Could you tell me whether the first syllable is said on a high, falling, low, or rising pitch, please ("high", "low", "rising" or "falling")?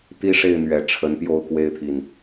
high